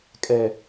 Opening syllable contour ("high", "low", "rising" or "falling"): low